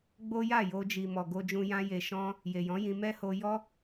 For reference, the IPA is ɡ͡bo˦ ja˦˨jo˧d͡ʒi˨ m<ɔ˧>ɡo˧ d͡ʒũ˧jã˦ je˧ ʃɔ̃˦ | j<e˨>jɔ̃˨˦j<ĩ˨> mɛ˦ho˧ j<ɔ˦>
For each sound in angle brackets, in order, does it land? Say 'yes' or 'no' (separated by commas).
no, yes, no, yes